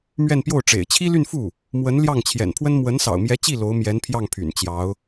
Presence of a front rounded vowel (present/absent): present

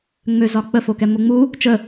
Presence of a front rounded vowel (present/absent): present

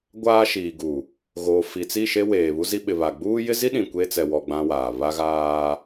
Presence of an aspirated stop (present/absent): absent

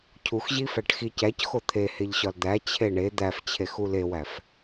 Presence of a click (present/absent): absent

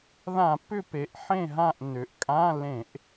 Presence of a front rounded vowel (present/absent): present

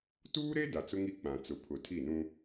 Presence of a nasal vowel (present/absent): present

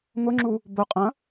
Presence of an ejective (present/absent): present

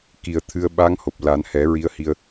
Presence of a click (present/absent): absent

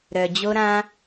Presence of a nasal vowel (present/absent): present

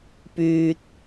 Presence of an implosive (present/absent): absent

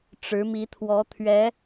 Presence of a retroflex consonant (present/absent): present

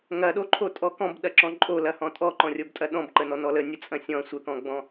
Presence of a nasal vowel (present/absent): present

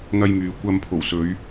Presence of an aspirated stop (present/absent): present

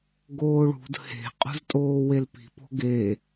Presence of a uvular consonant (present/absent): present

